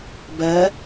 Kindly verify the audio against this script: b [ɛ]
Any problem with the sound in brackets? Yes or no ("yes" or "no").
yes